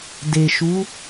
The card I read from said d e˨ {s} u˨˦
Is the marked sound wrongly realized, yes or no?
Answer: yes